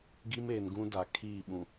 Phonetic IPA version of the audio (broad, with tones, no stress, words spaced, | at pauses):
ɡi˦meː˨nɡũ˦ da˨kʰiː˦˨ ɓũ˨